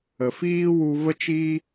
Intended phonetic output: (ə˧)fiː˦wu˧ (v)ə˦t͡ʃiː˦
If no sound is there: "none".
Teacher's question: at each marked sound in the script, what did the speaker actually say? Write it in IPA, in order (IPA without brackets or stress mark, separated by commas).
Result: ə˨, v